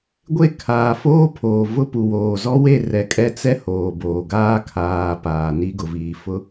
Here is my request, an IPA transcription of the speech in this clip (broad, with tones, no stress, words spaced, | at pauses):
ɡʷe˦˨kʰaː˨foː˦ pʰoː˨vʊ˦pu˨woː˨ zɔ˦we˦˨ rɛ˨kʼɛ˦˨t͡sɛ˦ hoː˨boː˨ɡaː˦ kʰaː˨ paː˨ ni˦ɡʊ˨ viː˨fʊ˦